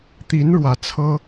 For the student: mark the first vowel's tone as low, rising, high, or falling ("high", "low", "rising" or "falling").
rising